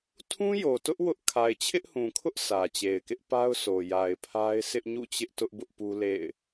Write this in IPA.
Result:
tʰ ũ˦ j o˨ t ʊ˦ ʔ w ʊ˦ ʔ kʰ a˨ ɪ̯ t͡ɕʰ ɪ˦ ʔ h ũ˨ kʰ ʊ˦ ʔ s ä˨ t͡ɕ e˨ ɪ̯ k ɪ˦ ʔ p a˦ ʊ̯ sʰ o˨ j a˨ ɪ̯ pʰ a˦ ɪ̯ s ɪ˦ ʔ ɲ ṵ˦˨ t͡ɕ ɪ˦ ʔ t ʊ˦ ʔ b ʊ˦ ʔ p u˦ l ḛ˦˨ ɪ̯

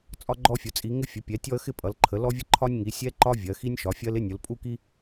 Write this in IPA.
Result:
t͡sʼ ɒ˦ ɡ͡ǃ ɔ˦ fʲ ʊ˩˧ t͡sʼ i˩˧ ŋ ɪ˦ fʲ ə˩˧ pʲ ɛ˩˧ tʲ ɔ˦ ə̯ x ɪ˦ pʼ ʌ˩˧ l ǃʰ ə˩˧ l ɔ˦ vʲ ə˦ ǃʰ ɒ˦ nʲ ŋ i˩˧ sʲ ɛ˦ ǃ ɒ˦ vʲ ɜ˩˧ x i˦ nʲ ʃ ɒ˩˧ fʲ ɜ˦ l ɪ˦ nʲ ʊ˩˧ l pʼ u˦ k i˦

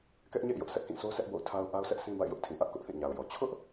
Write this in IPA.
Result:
k ɛ˦ ʔ ɲ ḛ˦˨ ɪ̯ j ʊ˦ ʔ sʰ ɛ˦ ʔ k ĩ˦˨ sʰ o˦ sʰ ɛ˦ ʔ b o̰˦˨ ʊ̯ tʰ a˦ ʊ̯ ʔ a˦ ʊ̯ sʰ ɛ˦ ʔ sʰ ĩ˦ b a̰˦˨ ɪ̯ j ʊ˦ ʔ tʰ ĩ˨ ʔ ä˦ ʔ k ʊ˦ ʔ θ ĩ˦˨ ɲ a˨ ʊ̯ j ɔ˨ t͡ɕʰ ʊ˦ ʔ

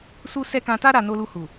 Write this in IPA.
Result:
s u˦ s ɛ˦ k ã˧ t a˦ ɾ a˧ n o˧ l u˧ h u˨

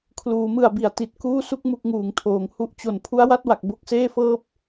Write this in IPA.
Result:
kʰ l uː˩˦ m ɯ˨˩ a̯ b i˩˦ a̯ t i˨˩ t̚ k uː˥˩ s u˦˥ k̚ m u˥˩ k̚ ŋ uː˨˩ ŋ tʰ oː˩˦ ŋ h u˥˩ ʔ t͡ɕ o˨˩ n pʰ u˦˥ a̯ w a˥˩ t̚ w a˨˩ k̚ b o˦˥ k̚ s eː˥˩ f ɤː˥˩ p̚

